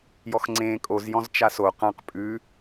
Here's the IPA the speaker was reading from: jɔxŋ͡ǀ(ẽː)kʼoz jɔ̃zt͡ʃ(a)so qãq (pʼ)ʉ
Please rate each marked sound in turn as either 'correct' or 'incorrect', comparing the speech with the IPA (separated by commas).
correct, correct, correct